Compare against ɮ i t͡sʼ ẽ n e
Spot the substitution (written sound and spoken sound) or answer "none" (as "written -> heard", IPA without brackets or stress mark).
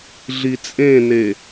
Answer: none